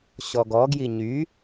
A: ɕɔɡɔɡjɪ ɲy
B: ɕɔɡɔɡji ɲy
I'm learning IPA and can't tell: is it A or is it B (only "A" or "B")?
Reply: B